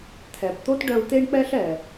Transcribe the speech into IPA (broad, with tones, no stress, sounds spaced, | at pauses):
t̪ʰ ɛ˩ b t̪ o˥ t ɖ œ˧ u̯ t̪ e˥ ɳ k͡p ɛ˥ ɬ ɛ˩